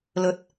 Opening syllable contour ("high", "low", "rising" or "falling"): low